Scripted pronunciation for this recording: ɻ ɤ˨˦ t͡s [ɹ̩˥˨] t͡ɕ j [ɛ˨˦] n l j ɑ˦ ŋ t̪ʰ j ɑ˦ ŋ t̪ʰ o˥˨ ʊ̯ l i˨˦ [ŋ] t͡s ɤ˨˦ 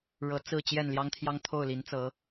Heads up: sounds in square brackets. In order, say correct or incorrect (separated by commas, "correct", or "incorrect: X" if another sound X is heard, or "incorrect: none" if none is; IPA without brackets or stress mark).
correct, incorrect: ɛ˥˨, incorrect: n